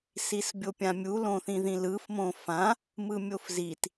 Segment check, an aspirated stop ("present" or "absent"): absent